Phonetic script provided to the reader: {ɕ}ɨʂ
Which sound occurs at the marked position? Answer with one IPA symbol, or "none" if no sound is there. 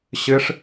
ɕ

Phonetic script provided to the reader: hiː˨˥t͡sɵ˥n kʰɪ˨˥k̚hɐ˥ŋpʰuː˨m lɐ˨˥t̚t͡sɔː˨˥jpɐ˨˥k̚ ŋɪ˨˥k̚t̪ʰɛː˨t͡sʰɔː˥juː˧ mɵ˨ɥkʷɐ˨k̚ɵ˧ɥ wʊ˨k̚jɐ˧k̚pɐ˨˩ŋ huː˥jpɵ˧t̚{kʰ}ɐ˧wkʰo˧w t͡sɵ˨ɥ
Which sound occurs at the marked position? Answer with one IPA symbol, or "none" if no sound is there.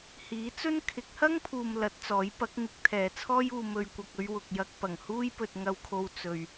ŋ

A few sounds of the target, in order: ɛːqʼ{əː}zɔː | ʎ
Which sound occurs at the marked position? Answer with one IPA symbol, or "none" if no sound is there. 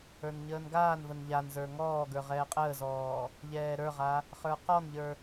əː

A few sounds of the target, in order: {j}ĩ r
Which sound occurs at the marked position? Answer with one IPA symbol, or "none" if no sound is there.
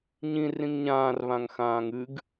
ɲ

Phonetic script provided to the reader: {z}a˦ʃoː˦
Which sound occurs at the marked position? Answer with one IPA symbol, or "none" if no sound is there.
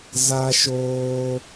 z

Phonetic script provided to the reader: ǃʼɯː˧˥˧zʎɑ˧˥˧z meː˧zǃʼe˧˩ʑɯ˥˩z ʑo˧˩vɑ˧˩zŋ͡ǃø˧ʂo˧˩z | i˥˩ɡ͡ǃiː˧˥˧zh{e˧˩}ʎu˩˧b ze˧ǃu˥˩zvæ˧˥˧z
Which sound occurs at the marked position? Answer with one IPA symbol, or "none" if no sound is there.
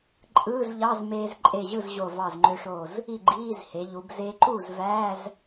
e˩˧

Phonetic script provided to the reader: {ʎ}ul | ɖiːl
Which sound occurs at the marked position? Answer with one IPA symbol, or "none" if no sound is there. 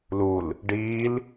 l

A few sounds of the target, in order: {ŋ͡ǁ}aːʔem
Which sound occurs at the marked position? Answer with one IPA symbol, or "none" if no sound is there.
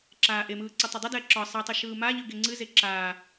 ǁ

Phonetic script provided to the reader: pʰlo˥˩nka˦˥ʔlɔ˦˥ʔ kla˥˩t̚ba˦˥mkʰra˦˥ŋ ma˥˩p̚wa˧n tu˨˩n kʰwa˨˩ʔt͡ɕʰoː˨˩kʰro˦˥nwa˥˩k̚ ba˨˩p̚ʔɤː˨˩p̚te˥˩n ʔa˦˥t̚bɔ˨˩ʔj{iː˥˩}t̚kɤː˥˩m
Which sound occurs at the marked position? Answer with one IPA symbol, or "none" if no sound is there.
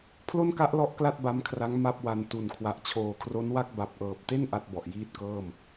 iː˥˩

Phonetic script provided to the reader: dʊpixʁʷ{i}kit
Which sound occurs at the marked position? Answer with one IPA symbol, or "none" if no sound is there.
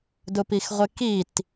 ɪ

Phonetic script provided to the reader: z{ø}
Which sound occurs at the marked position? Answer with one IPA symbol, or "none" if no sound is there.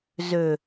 ø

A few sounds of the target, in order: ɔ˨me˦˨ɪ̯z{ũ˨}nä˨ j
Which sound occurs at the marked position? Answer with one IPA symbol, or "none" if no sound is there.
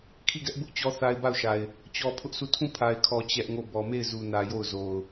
u˨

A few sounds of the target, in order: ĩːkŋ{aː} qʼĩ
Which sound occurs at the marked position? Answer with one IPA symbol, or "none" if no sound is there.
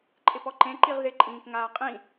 aː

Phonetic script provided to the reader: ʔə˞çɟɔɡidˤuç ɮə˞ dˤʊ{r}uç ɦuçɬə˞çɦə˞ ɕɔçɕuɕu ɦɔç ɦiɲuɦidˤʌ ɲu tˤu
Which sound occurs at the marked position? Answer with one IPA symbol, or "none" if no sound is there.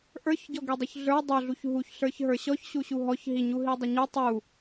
ɮ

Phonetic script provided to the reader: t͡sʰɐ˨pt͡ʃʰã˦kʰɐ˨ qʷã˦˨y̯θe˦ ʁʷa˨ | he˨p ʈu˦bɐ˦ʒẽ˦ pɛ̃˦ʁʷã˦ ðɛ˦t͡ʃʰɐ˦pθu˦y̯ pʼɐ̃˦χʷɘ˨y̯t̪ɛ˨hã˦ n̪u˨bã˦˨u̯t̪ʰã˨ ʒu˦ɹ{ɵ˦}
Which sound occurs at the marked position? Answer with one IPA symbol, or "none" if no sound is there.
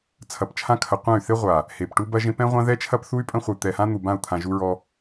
ɔ˦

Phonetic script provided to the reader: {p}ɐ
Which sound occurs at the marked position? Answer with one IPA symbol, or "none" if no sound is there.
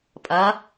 pʼ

